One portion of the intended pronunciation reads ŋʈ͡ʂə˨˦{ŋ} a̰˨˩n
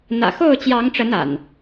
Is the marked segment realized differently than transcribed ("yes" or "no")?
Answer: yes